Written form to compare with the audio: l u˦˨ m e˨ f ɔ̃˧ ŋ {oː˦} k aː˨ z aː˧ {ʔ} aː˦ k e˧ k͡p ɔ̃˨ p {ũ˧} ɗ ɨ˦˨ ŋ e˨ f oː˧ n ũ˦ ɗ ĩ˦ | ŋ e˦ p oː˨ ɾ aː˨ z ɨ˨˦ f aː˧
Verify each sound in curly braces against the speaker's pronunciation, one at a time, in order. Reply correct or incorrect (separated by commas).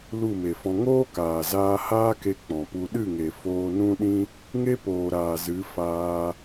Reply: correct, incorrect, incorrect